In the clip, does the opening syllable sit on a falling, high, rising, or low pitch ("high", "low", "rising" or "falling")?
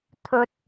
low